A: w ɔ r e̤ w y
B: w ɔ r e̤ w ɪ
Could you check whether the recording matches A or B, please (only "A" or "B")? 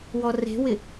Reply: B